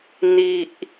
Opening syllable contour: high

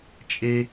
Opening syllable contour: high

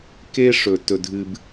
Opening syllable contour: high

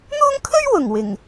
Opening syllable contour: high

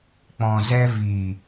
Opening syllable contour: low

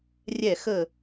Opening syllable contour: falling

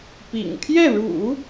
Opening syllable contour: low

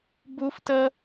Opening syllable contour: high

